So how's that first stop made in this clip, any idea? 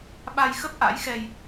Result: implosive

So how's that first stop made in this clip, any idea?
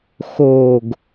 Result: plain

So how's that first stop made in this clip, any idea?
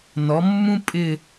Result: ejective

